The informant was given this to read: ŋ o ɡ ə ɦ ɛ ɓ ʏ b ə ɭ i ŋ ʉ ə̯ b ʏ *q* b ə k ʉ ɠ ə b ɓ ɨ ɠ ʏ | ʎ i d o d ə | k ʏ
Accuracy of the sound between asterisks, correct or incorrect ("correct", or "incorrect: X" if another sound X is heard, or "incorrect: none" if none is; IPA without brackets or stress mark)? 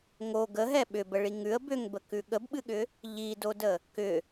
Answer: incorrect: ŋ